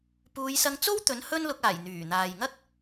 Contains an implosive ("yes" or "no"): no